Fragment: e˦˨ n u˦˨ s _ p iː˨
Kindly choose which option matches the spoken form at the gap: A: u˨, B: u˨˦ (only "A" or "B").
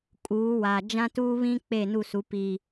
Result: B